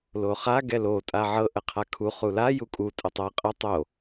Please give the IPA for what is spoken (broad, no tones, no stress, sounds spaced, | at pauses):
l o χ a ɡ ɛ l o tʼ a ʕ ɤ ʔ ə qʰ a kʰ u χ u l a j u kʼ u tʼ ə tˤ ɤ qʼ ə tˤ o